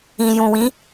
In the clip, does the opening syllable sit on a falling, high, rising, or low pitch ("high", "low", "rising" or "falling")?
low